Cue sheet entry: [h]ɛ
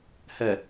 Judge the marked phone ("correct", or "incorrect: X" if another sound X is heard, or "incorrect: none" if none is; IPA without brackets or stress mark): correct